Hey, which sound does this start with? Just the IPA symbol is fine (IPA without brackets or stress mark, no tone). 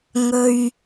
ŋ